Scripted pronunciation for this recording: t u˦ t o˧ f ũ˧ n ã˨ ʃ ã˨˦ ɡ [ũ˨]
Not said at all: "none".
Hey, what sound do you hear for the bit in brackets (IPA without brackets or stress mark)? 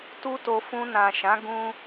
ũ˦